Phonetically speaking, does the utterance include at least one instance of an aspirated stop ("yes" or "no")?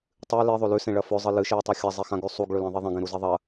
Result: no